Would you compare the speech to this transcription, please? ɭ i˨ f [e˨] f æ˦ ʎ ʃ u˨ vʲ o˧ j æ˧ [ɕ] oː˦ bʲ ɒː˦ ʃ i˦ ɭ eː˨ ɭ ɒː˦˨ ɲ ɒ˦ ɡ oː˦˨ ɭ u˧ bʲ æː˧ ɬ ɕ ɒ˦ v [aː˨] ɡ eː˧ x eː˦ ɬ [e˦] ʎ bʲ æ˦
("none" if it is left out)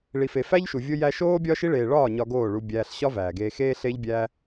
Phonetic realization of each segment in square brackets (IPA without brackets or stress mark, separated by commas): e˨, ʃ, æː˨, e˦